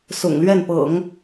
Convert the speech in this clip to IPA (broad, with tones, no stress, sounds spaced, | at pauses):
s ʊ̰˨˩ ŋ l ɥ ɛ˥˩ n p ɤ̰˨˩˦ ŋ